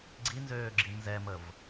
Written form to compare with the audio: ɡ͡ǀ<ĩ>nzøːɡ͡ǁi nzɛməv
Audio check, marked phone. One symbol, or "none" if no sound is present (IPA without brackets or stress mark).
i